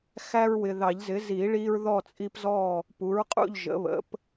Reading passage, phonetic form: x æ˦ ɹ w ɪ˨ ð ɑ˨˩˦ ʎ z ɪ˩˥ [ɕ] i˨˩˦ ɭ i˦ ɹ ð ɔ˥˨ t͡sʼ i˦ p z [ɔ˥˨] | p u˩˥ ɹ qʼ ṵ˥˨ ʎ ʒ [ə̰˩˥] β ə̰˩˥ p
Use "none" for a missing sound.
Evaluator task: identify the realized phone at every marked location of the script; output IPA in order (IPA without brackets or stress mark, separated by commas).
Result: z, ɔ˥˨, ə̰˩˥